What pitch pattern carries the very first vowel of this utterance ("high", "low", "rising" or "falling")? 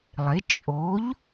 rising